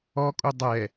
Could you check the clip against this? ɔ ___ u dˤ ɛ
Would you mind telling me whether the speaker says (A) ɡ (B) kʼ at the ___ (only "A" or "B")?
B